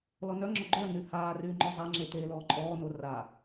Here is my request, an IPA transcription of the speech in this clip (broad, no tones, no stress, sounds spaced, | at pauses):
l ɔ n œ ŋ͡ǁ ɔ ɡ͡ǃ œ n y h aː r yː ŋ͡ǃ ɔ zˤ a ŋ͡ǁ e t eː l ɔː ǃʼ ɔː n o r a